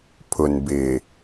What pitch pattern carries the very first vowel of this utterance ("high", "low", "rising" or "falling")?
low